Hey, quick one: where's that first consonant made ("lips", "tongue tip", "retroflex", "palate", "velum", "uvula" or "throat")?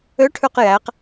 retroflex